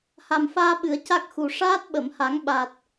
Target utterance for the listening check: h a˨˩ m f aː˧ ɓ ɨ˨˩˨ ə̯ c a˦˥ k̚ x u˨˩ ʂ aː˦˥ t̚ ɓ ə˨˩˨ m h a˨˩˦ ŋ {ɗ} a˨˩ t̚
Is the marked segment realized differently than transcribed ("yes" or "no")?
yes